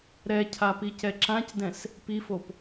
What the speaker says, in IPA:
ɾ ɛ cʰ a p i c ɛ ǁ ã c d ɛ̃ s | p i f o p

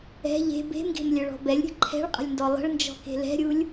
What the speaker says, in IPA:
ɛ̤ ʎ e̤ b e̤ m ɡ e̤ m lʲ œ ɭ ɔ̤ b ɛ lʲ ɾʲ ə̤ ǃʰ ɛ̤ ɭ qʼ ə̤ lʲ n d ɔ lˠ ə̤ ɭ n d͡ʒ ɔ̤ k e̤ l ɛ̤ ɾʲ u lʲ

